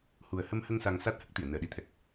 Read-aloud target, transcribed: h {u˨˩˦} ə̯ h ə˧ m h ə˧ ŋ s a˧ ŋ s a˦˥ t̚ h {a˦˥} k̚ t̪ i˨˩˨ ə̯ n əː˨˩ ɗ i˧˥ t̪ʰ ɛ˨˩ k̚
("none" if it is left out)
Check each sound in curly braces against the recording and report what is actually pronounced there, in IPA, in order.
u˨˩, ə˦˥

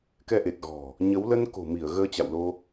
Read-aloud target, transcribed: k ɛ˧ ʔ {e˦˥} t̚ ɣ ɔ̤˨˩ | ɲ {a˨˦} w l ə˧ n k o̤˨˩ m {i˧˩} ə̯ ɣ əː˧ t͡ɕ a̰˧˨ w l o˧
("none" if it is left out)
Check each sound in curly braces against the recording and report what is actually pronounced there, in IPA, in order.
e˨˩, ə˨˦, i˧˩

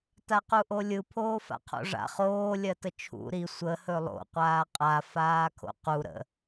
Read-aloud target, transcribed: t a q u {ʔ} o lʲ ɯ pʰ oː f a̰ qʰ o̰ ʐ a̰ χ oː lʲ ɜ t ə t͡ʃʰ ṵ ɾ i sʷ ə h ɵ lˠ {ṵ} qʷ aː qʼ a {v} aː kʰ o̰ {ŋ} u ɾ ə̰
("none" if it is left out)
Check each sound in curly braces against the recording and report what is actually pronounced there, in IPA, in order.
ʔ, o̰, f, q

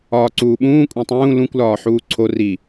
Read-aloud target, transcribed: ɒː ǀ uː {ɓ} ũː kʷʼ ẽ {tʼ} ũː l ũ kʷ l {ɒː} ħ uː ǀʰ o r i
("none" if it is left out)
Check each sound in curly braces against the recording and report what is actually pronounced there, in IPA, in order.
ɓ, tˤ, ɒː

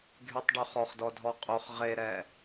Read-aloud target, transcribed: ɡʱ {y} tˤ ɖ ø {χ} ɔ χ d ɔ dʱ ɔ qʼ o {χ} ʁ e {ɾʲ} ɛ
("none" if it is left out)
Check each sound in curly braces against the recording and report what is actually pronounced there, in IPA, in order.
y, χ, χ, ɾ

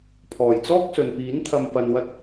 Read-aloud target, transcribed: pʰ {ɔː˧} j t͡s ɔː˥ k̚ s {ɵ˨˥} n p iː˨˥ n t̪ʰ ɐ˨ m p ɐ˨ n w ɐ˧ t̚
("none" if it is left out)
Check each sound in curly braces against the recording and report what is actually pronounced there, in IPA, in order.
ɔː˨˩, ɵ˨

